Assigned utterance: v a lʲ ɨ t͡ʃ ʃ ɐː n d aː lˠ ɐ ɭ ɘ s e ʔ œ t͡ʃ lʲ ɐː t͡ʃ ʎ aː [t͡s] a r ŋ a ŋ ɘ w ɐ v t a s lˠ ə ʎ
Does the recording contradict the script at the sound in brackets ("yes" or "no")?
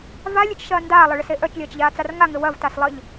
no